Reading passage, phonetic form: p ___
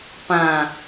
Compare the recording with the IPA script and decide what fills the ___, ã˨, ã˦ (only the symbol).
ã˨